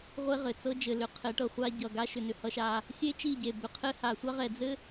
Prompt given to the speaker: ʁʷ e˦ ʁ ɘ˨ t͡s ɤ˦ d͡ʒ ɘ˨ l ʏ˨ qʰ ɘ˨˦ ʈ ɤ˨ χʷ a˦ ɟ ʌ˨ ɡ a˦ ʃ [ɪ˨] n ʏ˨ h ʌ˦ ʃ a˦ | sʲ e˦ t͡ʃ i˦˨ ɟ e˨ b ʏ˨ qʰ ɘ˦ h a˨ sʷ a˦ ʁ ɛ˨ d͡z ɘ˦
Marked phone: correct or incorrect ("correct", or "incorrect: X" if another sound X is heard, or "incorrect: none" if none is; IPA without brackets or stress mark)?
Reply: incorrect: ʏ˨